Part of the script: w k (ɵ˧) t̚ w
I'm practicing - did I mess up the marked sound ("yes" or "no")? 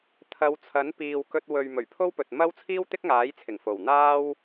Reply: no